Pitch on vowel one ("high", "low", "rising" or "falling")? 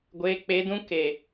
low